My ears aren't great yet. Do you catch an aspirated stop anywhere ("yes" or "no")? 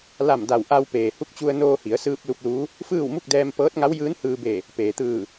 no